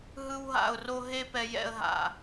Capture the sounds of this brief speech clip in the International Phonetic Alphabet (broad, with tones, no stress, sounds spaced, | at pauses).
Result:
ɦ ɯ˥ w ɦ a̰˥˧ ʊ̯ r o˥ ɦ e˥ p ɛ˧ j ɛ̰˥ ə̯ ɦ a̰˧˩